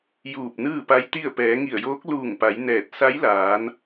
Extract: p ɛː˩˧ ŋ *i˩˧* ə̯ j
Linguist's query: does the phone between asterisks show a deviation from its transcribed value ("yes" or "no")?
yes